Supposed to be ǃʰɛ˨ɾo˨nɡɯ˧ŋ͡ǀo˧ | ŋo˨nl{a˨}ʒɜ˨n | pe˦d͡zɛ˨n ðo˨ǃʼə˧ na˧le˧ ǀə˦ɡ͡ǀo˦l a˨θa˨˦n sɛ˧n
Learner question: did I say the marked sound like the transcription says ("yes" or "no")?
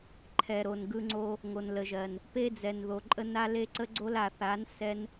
no